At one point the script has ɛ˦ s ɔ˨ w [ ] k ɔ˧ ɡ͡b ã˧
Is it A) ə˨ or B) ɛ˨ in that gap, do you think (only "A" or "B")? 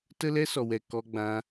B